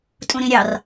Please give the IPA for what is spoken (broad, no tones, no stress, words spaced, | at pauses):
tʼũɾĩɾʲɑr